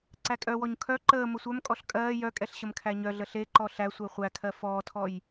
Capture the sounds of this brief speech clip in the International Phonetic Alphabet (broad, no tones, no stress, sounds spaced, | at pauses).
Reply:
ǀ æ kʼ œ w ɔ ɲ kʰ œ ǃ əː m ə sʷ œ m kʼ ɔ ɬ kʼ ɜː j œ kʼ ɛ ɬ ɕ ə m kʰ æ ɲ œ ɮ ə ɬ e ǃ ɔ ɬ æ sʷ ɜ χʷ æ kʰ ɜ f ɔː tʰ ɔ j